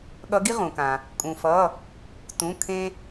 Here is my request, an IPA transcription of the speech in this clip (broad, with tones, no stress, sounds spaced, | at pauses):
ɠ ʌ˨˦ ɡ i˦ ʁ ũ˩ k ã˩ | kʼ ũ˩ f ʌ˩˧˩ | t ũ˩˧˩ kʰ ẽ˦